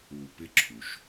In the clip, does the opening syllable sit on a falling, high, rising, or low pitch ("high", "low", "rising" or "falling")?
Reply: low